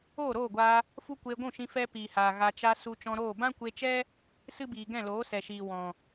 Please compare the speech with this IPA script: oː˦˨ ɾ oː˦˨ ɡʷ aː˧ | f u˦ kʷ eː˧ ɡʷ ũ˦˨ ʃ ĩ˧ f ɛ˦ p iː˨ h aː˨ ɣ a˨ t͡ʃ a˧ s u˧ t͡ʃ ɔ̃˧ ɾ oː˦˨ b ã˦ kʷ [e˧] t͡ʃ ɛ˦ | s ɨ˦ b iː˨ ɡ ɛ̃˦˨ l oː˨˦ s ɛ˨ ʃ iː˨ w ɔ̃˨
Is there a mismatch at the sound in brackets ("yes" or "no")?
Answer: no